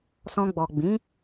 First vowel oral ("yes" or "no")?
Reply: no